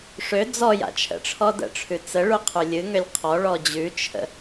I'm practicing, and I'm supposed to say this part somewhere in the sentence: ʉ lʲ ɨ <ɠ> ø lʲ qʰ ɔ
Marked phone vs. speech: incorrect: ŋ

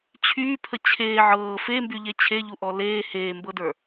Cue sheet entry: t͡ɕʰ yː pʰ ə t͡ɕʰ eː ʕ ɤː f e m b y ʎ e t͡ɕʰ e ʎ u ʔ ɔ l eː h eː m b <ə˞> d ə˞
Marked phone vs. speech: incorrect: ɤ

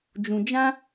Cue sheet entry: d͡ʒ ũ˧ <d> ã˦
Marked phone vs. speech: incorrect: d͡ʒ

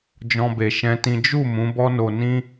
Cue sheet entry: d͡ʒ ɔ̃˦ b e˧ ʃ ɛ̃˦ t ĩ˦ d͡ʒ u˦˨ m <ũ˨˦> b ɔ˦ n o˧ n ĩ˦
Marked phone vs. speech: correct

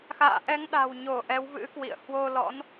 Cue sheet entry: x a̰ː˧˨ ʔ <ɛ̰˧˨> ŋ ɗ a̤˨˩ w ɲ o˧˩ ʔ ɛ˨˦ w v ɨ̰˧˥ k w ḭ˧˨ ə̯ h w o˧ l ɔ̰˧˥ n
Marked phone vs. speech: incorrect: ɛ˨˦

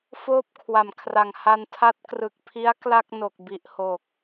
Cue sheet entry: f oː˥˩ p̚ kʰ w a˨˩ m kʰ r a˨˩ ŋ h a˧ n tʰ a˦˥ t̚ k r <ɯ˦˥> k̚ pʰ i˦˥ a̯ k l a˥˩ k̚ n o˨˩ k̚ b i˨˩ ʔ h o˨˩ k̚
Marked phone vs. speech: incorrect: ɯ˨˩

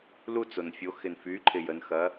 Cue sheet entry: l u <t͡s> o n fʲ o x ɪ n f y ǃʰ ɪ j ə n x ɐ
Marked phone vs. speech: correct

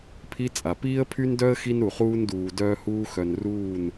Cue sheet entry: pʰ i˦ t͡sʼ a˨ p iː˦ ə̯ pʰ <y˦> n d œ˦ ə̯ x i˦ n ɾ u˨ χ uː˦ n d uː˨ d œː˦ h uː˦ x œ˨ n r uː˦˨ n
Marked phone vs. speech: correct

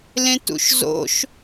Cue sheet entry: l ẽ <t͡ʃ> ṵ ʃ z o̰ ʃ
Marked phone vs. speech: incorrect: t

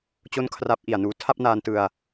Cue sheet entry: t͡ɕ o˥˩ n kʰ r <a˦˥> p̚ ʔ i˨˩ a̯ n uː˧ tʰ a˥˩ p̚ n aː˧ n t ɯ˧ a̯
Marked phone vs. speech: correct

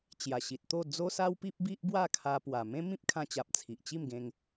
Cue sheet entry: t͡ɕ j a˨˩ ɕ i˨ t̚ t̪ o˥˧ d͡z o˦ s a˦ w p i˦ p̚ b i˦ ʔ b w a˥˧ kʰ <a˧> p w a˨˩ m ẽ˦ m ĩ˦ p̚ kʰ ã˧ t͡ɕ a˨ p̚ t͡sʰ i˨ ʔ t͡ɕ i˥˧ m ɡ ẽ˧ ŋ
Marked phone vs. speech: correct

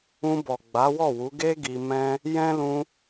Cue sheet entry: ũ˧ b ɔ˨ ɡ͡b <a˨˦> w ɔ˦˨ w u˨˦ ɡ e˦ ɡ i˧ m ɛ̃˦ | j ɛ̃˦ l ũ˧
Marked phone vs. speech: correct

